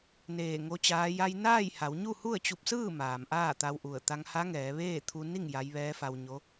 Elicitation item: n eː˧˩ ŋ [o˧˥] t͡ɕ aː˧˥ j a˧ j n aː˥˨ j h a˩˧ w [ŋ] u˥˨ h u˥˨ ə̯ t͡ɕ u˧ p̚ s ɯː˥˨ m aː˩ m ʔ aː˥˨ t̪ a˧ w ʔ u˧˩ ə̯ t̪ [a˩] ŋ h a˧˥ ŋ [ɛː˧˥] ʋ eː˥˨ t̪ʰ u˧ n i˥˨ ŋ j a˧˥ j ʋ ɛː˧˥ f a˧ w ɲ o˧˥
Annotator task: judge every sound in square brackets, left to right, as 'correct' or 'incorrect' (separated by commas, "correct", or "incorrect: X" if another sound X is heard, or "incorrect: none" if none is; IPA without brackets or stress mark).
correct, incorrect: ɲ, incorrect: a˧, incorrect: ɛː˩˧